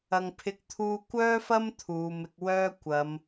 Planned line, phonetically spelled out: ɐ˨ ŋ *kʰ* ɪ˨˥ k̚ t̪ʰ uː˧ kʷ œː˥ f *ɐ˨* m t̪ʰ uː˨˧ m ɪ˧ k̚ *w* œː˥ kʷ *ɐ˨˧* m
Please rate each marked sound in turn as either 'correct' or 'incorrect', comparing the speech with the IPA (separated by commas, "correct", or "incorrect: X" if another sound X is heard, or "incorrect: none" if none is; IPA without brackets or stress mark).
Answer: incorrect: pʰ, incorrect: ɐ˥, correct, correct